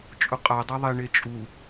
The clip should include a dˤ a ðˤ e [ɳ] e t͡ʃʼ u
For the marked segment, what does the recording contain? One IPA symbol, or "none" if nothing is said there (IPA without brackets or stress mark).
ɳ